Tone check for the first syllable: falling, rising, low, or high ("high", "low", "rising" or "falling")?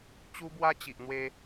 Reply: high